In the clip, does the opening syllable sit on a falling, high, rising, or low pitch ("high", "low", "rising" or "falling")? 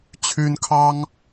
high